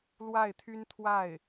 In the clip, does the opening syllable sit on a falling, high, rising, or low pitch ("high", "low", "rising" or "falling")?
falling